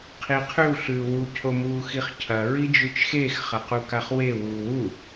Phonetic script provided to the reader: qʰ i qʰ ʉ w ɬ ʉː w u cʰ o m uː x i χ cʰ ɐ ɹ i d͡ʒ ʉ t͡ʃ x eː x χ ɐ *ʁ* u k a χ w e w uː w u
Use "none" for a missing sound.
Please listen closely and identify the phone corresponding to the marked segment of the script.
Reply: q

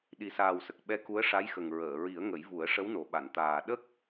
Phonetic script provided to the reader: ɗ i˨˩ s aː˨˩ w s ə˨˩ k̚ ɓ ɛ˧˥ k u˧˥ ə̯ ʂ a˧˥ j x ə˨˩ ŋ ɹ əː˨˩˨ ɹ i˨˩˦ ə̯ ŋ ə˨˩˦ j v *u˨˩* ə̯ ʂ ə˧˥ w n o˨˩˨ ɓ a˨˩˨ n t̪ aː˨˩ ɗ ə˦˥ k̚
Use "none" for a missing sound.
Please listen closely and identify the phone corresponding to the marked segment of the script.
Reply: u˨˩˦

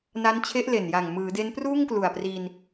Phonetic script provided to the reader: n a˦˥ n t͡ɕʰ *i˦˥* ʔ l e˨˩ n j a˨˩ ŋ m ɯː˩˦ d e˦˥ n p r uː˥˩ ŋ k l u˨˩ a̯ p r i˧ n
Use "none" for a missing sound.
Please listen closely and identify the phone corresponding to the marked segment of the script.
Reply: e˦˥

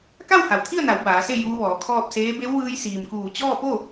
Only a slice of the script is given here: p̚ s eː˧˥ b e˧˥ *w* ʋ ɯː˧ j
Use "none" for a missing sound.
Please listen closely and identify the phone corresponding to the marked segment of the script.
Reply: w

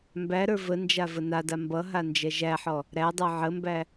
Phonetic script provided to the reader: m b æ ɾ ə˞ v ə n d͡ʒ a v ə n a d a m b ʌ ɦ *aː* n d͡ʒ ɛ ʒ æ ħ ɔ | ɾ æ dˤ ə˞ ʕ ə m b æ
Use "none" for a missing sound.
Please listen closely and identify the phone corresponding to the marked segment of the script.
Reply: a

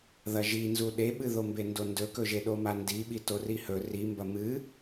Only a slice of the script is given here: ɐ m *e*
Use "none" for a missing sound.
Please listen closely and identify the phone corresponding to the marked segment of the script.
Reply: ɨ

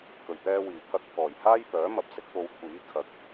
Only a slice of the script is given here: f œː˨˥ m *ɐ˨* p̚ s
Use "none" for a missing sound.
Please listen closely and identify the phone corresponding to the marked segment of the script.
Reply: ɐ˨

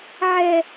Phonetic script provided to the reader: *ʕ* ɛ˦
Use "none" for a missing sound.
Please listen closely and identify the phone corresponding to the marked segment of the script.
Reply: ʕ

